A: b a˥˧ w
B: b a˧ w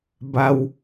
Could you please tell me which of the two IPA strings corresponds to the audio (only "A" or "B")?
B